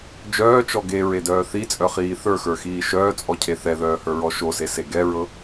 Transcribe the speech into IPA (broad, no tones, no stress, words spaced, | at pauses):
d͡ʒœːt͡ʃɔ ɡeɹedœː θit͡sʼœχiː θə˞xə˞xiː ʃœːt͡sʼɔcʰe θɛðœːhə˞ɹɔ ʃosese ɡɛɹɤ